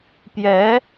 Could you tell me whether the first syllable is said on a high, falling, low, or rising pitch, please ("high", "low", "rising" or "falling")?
rising